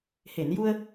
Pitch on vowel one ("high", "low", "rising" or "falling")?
low